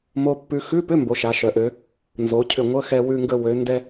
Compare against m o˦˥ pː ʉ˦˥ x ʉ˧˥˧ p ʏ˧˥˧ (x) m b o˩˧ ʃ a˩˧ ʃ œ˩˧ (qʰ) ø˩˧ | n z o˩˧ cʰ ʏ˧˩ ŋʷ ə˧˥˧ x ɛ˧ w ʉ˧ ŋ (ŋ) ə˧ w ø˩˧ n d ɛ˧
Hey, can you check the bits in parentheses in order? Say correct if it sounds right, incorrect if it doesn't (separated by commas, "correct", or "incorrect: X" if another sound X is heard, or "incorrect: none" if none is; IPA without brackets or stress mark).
incorrect: none, incorrect: ʔ, incorrect: ɡ